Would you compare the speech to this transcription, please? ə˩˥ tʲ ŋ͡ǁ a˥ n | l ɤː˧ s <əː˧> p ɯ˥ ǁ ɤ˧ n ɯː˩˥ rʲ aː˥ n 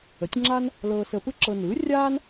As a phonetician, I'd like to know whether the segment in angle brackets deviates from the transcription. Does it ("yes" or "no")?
no